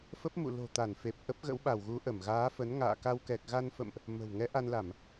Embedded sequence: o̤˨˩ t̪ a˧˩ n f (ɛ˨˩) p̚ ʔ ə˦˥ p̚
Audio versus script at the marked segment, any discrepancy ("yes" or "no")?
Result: yes